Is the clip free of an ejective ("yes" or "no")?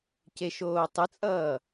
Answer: no